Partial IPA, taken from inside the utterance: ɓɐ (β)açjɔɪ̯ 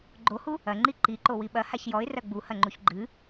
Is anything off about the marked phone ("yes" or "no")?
yes